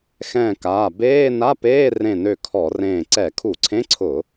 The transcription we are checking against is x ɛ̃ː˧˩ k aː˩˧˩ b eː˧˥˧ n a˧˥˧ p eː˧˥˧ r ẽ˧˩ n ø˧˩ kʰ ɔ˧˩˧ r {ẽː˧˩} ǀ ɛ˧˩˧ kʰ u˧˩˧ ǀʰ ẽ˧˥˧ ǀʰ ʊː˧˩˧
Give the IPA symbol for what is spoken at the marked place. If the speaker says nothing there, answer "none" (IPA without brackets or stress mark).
ẽː˧˩